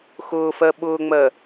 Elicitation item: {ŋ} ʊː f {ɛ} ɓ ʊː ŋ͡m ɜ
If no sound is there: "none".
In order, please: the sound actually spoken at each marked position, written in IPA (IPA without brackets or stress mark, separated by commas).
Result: x, ɜ